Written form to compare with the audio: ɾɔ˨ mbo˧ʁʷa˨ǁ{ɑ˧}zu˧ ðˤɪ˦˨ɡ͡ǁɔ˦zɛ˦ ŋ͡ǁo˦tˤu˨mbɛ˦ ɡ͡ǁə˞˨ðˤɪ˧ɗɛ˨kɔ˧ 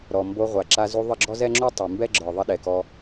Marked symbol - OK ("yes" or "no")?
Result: no